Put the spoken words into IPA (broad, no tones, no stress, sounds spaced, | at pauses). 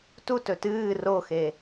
t u t ɵ t ɨː r o x e